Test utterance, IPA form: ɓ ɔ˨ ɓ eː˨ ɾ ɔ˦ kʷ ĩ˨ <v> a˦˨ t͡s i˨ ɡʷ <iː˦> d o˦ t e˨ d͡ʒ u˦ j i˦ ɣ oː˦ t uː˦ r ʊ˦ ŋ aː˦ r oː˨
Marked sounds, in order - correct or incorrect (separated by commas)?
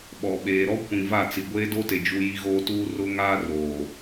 correct, incorrect